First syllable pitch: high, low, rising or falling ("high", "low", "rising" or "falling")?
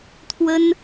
high